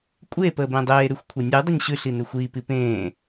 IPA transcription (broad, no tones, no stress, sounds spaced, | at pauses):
kʷʼ e p əː b ẽ dˤ eː ɾ ʉ xʷ kʷʰ e nʲ ʉ dˤ ə ɲ ɕ ʉ ɬ i n ʉ xʷ iː p i p ẽː